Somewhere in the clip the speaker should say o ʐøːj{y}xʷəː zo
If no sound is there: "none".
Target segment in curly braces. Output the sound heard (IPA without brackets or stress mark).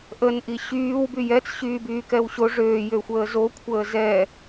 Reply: ø